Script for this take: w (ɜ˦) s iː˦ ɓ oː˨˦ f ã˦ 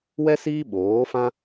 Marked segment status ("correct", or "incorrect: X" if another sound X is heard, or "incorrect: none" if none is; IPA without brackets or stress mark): incorrect: ɛ˦